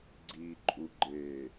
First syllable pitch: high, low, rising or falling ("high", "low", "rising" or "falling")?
low